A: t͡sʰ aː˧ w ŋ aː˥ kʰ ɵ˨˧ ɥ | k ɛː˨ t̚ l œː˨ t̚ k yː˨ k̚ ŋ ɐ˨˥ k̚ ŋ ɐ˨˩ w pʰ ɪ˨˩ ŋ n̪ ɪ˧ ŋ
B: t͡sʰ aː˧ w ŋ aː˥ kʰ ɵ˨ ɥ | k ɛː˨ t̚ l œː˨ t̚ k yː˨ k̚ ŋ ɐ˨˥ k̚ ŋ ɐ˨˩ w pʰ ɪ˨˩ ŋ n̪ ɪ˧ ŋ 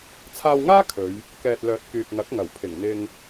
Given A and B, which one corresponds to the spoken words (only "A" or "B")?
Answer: A